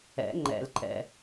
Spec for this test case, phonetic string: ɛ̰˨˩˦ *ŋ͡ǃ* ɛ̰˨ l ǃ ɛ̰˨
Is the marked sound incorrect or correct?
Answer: correct